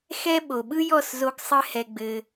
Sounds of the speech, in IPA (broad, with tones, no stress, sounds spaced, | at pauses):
x ɛ˦ ɓ o˨ ɓ ɯ˦ j ɔ˦˨ s z o˧ ɡ sˤ ɘ˦ h ɛ˧ ɡ͡b ɘ˧